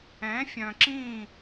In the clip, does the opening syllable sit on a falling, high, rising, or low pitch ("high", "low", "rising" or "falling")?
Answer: rising